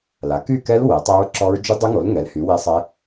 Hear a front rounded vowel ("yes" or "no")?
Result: yes